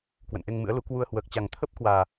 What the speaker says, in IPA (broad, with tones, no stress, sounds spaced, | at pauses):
k w ə̰˧˨ n ʔ e˧ ŋ m ɨ̰˧˥ ə̯ l u˨˦ k w u˧ ə̯ h w əː˨˩ k̚ t͡ɕ a˨˩ ŋ t̪ʰ ə˦˥ p̚ k w aː˨˩